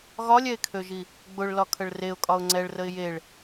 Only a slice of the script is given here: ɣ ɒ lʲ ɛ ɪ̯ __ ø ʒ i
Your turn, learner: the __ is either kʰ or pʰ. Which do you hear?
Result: kʰ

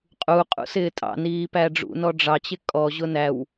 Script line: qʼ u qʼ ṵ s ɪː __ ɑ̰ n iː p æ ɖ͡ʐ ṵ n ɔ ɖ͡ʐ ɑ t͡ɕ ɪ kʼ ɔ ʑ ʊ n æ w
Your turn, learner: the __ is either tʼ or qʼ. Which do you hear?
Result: tʼ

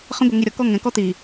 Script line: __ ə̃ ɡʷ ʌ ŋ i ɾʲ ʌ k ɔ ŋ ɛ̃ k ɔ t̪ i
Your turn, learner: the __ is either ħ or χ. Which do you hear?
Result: χ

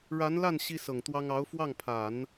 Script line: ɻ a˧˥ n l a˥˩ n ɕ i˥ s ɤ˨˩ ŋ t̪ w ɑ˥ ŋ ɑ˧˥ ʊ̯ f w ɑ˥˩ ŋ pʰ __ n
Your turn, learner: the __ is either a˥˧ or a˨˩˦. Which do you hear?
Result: a˨˩˦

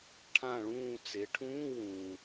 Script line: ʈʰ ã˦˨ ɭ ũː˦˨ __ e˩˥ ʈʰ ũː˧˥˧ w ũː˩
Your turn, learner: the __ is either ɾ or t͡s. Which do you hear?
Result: t͡s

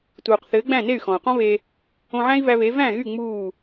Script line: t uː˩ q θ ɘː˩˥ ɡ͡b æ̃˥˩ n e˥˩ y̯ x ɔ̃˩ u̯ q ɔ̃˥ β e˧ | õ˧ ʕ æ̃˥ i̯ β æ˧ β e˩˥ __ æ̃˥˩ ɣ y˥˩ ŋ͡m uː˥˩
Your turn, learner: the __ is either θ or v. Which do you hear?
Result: v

